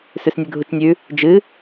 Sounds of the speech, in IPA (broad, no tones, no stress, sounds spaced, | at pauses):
s ʉ s nʲ ʉ ɡʱ u t͡ʃ nʲ ʉ | d͡ʒ ɨ